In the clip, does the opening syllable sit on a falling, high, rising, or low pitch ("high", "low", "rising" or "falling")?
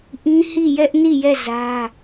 high